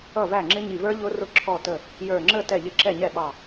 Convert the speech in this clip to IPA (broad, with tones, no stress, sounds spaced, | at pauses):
ʌ˥˩ v æ˥˩ ŋ͡ǁ ɪ˦˥ ɲ i˧˩ v ə˞˦˥ ʎ ʊ˦˥ r ʊ˦˥ ǁʰ ɔ˧˩ t ə˧˩ | j ə˞˧˩ ŋ͡ǁ ə˥˩ t ɛ˥˩ ʎ ɪ˥˩ ǁ ɛ˥˩ ɲ ɛ˥˩ ɓ ɑ˧˩